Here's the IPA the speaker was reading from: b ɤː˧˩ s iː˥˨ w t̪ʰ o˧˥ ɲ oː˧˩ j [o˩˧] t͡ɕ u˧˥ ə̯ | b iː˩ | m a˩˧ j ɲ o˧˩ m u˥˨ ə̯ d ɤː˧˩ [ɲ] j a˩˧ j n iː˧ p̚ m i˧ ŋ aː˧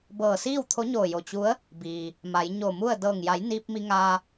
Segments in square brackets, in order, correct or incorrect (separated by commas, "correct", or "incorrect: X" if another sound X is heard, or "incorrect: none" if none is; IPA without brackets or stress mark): incorrect: o˧˩, incorrect: ŋ